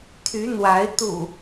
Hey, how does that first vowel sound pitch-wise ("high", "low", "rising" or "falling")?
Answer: rising